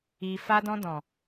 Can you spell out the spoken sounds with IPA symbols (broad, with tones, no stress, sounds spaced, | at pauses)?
i˨ f a˧ d ɔ̃˧ d ɔ̃˨